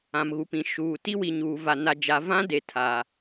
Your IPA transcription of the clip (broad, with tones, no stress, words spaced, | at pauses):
ã˨mɣu˨pĩ˨ ʃuː˨ ti˦wi˨ɲuː˨va˨ na˨d͡ʒa˨ vã˦de˨ tʰa˨